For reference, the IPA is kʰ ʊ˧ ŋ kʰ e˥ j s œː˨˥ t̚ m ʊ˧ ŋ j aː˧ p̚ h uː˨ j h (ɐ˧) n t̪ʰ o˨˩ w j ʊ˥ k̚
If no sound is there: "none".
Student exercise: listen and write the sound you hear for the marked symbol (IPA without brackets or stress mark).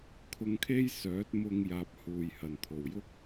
ɐ˨˩